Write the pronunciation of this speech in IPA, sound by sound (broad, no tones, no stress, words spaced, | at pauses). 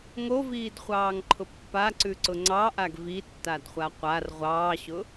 ŋoviːdχʷɑːŋǃʰʊ pːaǀʉǀʊ ŋ͡ǀɑʔaɡ vitːadχʷa qʷar ʁʷɑːɕʊ